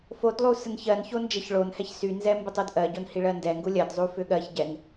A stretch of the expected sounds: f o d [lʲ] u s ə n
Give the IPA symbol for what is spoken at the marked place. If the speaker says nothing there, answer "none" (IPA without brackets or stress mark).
lˠ